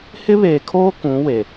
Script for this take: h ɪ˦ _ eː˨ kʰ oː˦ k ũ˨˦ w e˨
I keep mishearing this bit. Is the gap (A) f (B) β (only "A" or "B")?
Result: B